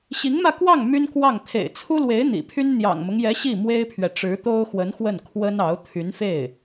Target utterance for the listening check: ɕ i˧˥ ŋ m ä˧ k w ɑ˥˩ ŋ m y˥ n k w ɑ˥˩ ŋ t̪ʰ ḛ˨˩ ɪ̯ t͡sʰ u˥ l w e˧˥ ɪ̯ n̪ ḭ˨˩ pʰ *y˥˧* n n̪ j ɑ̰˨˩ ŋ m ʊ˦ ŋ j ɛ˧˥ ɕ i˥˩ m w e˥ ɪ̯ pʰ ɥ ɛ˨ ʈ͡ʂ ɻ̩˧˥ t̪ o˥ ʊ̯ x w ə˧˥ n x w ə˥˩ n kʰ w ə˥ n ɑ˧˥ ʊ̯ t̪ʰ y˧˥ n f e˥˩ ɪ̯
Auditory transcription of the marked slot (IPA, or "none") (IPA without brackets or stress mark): y˥